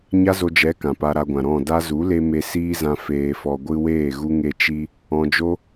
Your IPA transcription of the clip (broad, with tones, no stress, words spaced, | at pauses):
ɲa˦zo˧d͡ʒɛ˨˦ kã˨pa˧ɾa˧ɡʷã˨ ɾɔ̃˦˨ da˧zu˨˦le˧ me˧siː˦zã˧ feː˨fɔ˨ ɡʷɨ˧weː˦˨ ɣu˧ ŋe˧ t͡ʃi˧ | ɔ̃˧d͡ʒo˦